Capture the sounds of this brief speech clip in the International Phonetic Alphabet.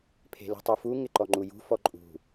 pʰ e̤ l ṳ tˤ u f u ŋ ɪ ǃ ɔ ŋ͡ǃ u j ṳ f ɔ ǃʼ ṳ

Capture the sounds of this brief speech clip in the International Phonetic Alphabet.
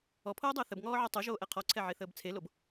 ɔ pʰ oː dˤ əː θ ə b ŋ ɔː ʕ ɔ tˤ o ʒ oː ʔ ɛ qʰ ɔ ǀʰ ɛ ʕ e θ əː b t͡sʰ e l o b

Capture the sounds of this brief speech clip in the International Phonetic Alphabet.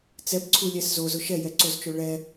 t͡s ɛ b ǀʰ u lʲ ɛ s z o z ʊ ʃ ɛ j ɛ ǀ o z t͡ʃ o ɭ ɛ

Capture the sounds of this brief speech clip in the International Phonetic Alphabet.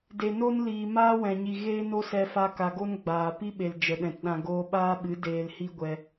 d e˨ n o˦ n l iː˨ m aː˦ w ɛ̃˨ ɲ i˨ ɣ eː˦ n o˦ s ɛ˧ f a˧ k a˨ ɡ o˦ n ɡ͡b aː˨ p i˦ ɓ e˨ l d͡ʒ ə˨ ɗ ɛ̃˨ t ɗ ã˧ ɡ oː˧ ɓ aː˦ ɓ ɨ˨˦ d eː˧ l h i˦ ɡʷ ɛ˧

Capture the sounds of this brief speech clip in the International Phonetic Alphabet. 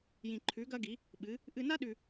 j ĩ˧ ǃʰ ʉ˧˥ ɡ ɐ˥ ɡ i˧˥ | ɓ ɨ˧˥ | ʔ ɨ˧ n a˥ ɗ ʉ˧

